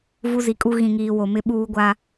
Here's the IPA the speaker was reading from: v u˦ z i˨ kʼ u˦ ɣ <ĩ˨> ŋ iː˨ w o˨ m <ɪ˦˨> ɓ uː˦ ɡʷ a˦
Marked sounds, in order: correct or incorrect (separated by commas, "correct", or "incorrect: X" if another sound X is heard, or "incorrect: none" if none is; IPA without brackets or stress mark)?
correct, incorrect: ɪ˦